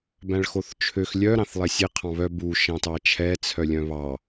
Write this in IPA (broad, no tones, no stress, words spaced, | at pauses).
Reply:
bæ̃ɭxoθt͡ʃʰøx lʲœ ɾɑ̃θlˠɛsʲe qʰɑ̃βœ bu ʃɑ̃tɑt͡ʃʰɛ t͡sʰœlʲœ̃βɑ